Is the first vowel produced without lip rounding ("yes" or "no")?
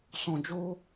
no